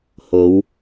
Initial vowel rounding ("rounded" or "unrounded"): rounded